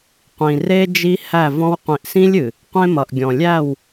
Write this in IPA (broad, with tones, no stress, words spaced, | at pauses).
qʷĩ˨re˦d͡ʒi˦ hæ˦˨vɔ̃˦w qʷĩ˨ʔsĩ˦lʲɨ˨ | qʷẽ˦mʌ˨ʔɡʲɔ̃˨ lʲæ˦˨w